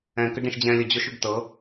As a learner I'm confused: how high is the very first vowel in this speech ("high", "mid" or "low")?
mid